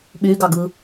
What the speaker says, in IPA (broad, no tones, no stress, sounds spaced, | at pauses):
ɓ y ɡ ɑ ɡ ɯ